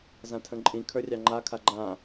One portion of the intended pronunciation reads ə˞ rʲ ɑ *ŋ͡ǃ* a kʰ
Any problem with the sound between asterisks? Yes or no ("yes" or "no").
no